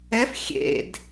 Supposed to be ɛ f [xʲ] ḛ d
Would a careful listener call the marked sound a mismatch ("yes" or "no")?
no